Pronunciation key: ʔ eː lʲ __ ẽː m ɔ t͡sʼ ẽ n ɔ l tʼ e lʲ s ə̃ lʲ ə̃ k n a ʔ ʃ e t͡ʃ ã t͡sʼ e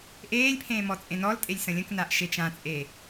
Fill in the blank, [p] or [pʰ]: pʰ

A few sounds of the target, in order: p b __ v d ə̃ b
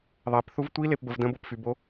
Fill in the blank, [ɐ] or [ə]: ə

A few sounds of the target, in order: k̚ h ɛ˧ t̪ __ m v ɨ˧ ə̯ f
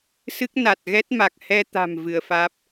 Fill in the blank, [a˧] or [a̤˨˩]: a̤˨˩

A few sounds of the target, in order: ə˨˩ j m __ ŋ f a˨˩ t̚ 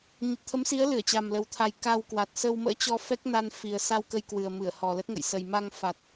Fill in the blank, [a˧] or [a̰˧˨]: a˧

